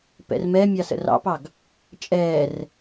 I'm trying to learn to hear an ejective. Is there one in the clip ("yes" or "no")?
yes